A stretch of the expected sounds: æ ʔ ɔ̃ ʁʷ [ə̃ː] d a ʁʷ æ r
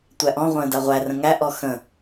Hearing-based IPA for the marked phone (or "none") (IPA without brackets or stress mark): ə̃ː